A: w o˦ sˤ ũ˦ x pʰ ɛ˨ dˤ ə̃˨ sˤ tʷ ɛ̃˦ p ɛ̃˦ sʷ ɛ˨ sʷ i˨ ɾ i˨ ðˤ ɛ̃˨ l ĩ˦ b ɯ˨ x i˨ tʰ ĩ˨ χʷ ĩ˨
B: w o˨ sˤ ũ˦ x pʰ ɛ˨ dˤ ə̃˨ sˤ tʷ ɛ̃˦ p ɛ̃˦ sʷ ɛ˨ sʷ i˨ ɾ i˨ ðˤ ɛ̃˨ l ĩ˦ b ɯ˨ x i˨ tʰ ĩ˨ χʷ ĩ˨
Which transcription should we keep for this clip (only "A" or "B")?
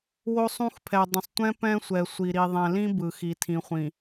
A